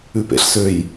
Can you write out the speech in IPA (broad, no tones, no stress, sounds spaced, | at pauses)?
ʉ p ḛ ɬ s ø j